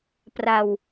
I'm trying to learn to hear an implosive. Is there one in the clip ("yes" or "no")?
no